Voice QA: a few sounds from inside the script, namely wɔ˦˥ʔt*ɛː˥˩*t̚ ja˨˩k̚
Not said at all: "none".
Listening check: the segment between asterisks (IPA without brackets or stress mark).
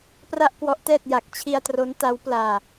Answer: ɛː˥˩